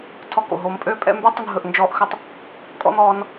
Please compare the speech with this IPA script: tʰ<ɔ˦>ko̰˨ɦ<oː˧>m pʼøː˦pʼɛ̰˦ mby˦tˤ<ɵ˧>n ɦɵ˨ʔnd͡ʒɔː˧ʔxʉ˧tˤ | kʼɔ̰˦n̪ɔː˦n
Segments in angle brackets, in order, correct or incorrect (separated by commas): incorrect, correct, correct